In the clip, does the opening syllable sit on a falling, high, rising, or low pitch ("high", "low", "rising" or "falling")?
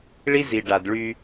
high